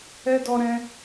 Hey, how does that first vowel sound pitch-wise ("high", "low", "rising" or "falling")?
high